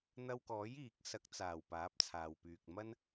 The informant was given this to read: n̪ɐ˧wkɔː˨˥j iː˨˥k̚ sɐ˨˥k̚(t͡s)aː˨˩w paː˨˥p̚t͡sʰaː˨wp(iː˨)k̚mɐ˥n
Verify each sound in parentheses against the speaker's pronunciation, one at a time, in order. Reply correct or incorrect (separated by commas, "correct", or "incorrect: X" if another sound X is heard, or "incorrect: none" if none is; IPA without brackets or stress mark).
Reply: correct, incorrect: yː˨